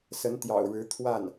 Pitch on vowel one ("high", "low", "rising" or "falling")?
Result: rising